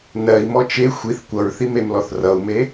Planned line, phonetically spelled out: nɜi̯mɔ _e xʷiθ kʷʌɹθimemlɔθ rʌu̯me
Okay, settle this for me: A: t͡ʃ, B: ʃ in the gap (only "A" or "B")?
A